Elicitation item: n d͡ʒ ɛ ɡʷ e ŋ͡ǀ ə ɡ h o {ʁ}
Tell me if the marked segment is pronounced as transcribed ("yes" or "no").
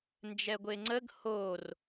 no